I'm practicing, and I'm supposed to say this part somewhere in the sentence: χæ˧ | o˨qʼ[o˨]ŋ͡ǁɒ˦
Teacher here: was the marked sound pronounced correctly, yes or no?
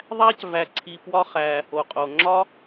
yes